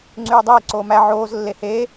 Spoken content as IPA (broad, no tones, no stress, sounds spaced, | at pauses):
ŋ͡ǀ yː dˤ eː ǀ oː m æ ʕ oː z lː e h eː